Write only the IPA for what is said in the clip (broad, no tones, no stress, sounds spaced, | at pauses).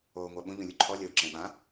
oː ŋʷ a ɓ ũ ʎ ũ lʲ u ǃʰ ɔ lʲ o ǁ ẽ ɓ ã